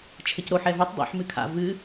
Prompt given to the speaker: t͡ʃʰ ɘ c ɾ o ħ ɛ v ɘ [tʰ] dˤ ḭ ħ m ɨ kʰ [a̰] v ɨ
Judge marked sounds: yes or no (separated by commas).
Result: no, yes